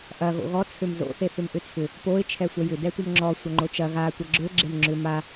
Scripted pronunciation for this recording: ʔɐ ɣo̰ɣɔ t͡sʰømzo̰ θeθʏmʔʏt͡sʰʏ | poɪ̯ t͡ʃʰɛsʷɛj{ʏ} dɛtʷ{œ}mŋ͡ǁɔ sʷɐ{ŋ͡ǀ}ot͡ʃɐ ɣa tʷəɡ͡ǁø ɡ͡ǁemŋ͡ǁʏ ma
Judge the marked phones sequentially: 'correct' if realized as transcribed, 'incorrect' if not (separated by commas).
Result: correct, correct, incorrect